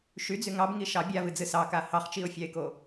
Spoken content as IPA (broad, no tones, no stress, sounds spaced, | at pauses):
ʃ y d͡z y ŋ ɑ b ŋ i ʃ ɑ bʲ a v ɨ d͡z ɨ s ɑ k a h ɑ χ t͡ʃ i ʊ̯ fʲ ɑ ɪ̯ k o